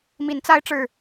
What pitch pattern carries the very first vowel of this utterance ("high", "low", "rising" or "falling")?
rising